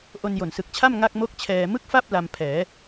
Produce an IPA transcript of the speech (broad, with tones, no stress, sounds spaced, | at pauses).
ʔ o˧ n j o˨˩ n s ɯ˨˩ k̚ t͡ɕʰ a˥˩ m ŋ a˥˩ k̚ m o˥˩ k̚ t͡ɕʰ ɛː˧ m ɯ˥˩ k̚ f a˥˩ p̚ l a˧ m pʰ ɛː˩˦